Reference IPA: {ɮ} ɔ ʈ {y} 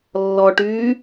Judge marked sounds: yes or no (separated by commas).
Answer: no, no